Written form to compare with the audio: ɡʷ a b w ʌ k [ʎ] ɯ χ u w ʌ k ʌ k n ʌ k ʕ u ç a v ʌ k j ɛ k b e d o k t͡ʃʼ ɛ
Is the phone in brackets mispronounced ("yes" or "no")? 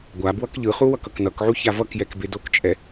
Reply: no